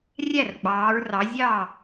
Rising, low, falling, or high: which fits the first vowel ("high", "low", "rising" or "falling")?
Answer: falling